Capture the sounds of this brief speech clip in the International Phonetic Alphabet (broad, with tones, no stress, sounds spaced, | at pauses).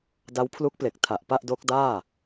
d a˦˥ w pʰ l u˦˥ k̚ p l e˨˩ k̚ tʰ a˨˩ ʔ p a˥˩ ʔ d o˦˥ k̚ d aː˥˩